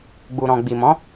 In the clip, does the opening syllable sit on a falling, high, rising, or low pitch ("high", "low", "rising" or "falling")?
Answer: low